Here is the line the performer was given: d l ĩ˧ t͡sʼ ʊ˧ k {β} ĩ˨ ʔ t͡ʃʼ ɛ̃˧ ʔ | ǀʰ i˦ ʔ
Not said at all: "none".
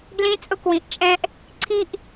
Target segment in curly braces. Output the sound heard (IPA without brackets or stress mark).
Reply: w